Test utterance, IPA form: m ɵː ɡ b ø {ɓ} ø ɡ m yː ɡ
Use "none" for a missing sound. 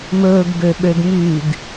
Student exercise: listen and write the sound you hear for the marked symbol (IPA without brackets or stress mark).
ɓ